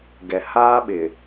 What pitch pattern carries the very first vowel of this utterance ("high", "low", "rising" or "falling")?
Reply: low